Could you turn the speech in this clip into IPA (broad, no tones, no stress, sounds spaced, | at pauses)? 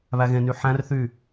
β æ ɣ ẽ n yː ħ æ̃ r θ yː